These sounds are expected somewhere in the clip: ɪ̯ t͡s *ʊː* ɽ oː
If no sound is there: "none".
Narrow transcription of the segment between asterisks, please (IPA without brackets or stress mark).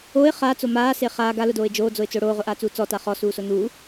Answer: ʊː